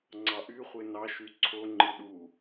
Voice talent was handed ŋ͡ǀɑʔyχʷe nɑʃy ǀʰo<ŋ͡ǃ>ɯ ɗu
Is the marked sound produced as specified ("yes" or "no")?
yes